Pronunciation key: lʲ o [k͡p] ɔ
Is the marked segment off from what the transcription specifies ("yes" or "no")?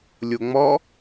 yes